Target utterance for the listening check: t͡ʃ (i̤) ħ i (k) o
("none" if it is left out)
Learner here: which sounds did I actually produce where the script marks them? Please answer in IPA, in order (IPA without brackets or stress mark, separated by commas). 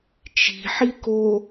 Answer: i̤, k